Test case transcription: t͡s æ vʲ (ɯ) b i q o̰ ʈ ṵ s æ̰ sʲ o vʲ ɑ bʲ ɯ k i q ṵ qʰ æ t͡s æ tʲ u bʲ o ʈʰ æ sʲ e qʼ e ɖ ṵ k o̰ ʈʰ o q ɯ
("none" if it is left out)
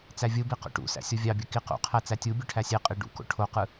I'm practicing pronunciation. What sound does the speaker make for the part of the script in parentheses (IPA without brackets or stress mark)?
ɯ